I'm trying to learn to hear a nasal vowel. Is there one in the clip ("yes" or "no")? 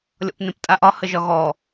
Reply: yes